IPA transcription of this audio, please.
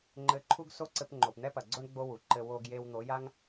ŋ͡ǃ ɘ˧ ǃʰ u˦ ɡ s o˦ ǀ ɘ˧ p ŋ͡ǃ o˨ p n̪ ɛ˦ p ɐ˨ ɡ͡ǀ o˦ ɳ ɡ͡b o˦ w u˨ ǃ ɘ˧ w o˧ ɡ j e˧ w n̪ o˨˦ j a˦ ŋ

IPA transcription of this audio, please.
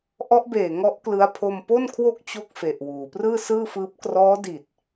ʔ ɔ˦˥ ʔ b eː˨˩ ŋ ɔ˦˥ ʔ k l ɯ˦˥ a̯ pʰ o˧ m p o˥˩ n kʰ w o˥˩ k̚ t͡ɕ o˥˩ k̚ f e˨˩ ʔ w uː˩˦ p r ɯː˥˩ s ɯː˥˩ f ɯː˦˥ p̚ k r ɔː˦˥ d i˨˩ t̚

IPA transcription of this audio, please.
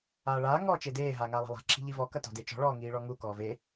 aː ɭ aː ŋ ɔː t͡ʃ e d eː ɦ aː ŋ aː lˠ a̤ lˠ a̤ ǁʰ i̤ ʎ i v ɔ k ɐ t ɔ̤ d e t͡ʃ ɔ̤ ɭ ɔː ŋ iː ɭ ɔ ŋ u k ɔː v e

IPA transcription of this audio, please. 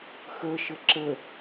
x ə ʃ ə ǁ ə

